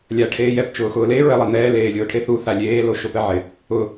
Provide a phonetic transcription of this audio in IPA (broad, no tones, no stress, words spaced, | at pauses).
lʲa ʈʰeːjɛp t͡ʃʊːxʊːle ɹɛlˠanɛː leːlʲʊːʈʰeθu θalʲeː loʃopɛʕɪ | ʊ